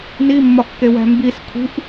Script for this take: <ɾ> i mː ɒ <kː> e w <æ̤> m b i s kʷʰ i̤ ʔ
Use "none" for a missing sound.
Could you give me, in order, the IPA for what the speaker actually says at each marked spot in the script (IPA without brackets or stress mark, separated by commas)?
n, kː, æ̤